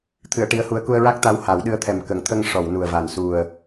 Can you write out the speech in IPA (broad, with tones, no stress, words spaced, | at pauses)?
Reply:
t̪ʰɨ˨˩˨ə̯ ʈi˧˥ə̯hu˧˥ə̯ ku˧ə̯ɹa˦˥k̚t̪a˧˥w ha˨˩˦wɗɨ˧˥ə̯t̪ʰɛ˨˩m kə˨˩˨ŋt̪ʰə˧ŋ ʂɔ˨˩˨w nu˨˩ə̯va˨˩n su˨˩ə̯